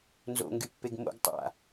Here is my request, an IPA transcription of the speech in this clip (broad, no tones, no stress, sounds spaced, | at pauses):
n z o̰ ŋ ɡ y pː e ɡ m o̰ ɡ tˤ a̰